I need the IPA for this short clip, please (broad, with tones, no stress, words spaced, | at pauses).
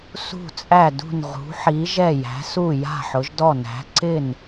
sṳ˧˩t͡sʼæ˧˩dṳ˧˩n ʁṳ˩˧ħi˩˧ʒɛ˧˩ jæ̤˩˧su˧˩ ja̤˧˩ħʊ˩˧ʒdɔ˧˩næ̤˩˧ ǀɪ˧˩n